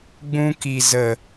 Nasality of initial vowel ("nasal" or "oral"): nasal